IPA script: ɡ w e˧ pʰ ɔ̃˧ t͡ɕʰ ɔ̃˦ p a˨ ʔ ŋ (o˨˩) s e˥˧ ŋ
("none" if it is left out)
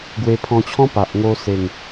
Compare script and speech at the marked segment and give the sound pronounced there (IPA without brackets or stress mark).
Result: o˧